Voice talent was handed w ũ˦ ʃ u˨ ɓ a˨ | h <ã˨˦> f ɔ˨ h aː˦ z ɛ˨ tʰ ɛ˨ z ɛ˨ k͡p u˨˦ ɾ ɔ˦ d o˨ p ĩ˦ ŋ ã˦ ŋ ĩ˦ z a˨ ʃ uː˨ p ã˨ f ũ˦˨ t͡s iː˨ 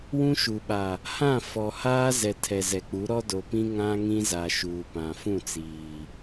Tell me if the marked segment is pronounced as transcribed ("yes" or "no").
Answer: no